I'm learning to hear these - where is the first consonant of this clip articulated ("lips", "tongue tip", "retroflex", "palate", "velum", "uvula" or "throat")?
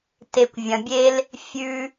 tongue tip